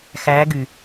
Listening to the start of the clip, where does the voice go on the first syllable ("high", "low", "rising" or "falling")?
rising